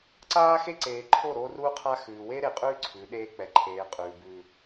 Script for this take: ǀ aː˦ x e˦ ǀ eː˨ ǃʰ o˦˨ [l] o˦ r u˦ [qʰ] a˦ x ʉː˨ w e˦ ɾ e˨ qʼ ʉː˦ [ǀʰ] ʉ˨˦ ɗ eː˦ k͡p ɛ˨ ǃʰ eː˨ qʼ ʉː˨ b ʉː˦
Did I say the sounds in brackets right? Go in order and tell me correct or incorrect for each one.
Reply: incorrect, correct, correct

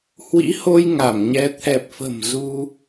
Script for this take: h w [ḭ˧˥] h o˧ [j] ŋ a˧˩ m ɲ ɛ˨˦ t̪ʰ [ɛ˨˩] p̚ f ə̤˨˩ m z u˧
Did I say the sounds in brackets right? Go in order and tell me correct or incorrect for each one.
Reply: correct, correct, correct

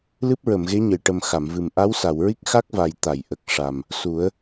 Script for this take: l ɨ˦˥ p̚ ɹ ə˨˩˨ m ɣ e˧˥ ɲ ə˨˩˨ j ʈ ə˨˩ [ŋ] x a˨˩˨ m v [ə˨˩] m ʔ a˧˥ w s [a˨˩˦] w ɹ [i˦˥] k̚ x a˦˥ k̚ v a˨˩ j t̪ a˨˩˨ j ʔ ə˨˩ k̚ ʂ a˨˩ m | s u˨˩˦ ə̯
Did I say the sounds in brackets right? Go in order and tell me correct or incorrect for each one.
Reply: incorrect, incorrect, incorrect, correct

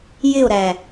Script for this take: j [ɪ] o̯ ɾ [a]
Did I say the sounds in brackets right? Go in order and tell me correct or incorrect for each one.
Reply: correct, incorrect

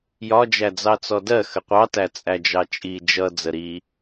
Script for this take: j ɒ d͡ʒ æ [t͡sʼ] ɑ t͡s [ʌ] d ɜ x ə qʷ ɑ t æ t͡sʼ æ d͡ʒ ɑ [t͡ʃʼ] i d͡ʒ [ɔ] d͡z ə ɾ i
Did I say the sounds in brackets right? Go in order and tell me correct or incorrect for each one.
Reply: incorrect, incorrect, correct, incorrect

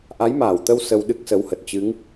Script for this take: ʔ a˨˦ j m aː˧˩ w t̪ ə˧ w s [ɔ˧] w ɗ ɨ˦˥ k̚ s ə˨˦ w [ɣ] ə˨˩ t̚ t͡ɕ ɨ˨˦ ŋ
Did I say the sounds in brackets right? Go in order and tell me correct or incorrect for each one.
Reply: incorrect, incorrect

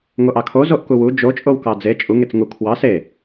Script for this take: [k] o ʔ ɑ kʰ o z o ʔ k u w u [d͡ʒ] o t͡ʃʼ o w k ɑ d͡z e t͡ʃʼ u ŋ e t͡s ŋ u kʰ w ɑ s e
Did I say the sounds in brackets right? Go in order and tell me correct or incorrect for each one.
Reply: incorrect, correct

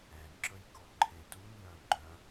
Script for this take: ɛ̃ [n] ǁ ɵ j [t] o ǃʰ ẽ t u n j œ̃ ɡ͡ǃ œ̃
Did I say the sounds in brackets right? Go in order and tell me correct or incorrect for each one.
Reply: correct, incorrect

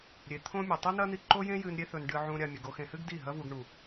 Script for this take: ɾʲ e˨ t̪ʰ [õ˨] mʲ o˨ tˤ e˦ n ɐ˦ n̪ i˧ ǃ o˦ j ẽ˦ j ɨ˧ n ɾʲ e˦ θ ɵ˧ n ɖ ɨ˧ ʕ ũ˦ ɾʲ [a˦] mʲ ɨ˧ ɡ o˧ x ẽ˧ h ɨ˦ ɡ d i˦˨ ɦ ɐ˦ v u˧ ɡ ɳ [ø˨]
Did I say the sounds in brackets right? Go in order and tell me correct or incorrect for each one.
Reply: incorrect, correct, incorrect

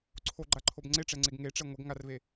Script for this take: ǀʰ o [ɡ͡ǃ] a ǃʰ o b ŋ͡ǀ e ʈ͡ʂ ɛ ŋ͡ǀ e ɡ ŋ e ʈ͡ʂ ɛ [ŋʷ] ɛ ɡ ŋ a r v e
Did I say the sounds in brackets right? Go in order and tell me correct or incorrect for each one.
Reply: correct, correct

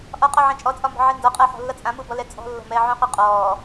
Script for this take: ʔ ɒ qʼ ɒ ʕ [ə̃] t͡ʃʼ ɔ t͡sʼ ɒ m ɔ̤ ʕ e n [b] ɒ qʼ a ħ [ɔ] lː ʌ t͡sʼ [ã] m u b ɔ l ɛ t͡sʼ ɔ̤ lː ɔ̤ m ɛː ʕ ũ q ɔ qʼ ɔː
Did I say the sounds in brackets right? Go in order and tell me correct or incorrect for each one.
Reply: incorrect, incorrect, incorrect, correct

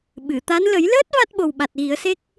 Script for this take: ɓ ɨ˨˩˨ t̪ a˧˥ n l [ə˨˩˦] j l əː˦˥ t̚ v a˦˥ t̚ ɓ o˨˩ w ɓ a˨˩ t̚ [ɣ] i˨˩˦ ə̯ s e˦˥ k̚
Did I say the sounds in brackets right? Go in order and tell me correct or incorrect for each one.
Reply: correct, correct

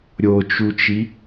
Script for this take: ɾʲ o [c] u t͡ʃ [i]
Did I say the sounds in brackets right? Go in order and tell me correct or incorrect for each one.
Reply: incorrect, correct

